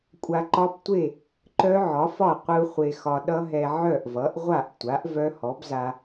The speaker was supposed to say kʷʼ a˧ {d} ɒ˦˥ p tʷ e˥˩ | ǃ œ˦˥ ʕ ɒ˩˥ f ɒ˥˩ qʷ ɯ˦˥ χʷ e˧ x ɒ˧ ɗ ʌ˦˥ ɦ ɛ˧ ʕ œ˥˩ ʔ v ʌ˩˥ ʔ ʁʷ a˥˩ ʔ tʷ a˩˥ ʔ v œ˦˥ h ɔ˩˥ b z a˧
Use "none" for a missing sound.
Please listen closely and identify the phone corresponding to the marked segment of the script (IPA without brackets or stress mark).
ǃ